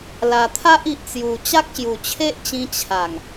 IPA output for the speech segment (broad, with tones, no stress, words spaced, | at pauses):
la˨˩t̪ʰa˦ʔi˨ʔt͡sju˨˩ t͡ɕa˦k̚ɕju˨˩t͡ɕʰe˦ʔt͡ɕĩ˧ t͡ɕʰa˨˩ŋ